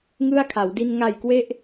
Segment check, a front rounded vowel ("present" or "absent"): absent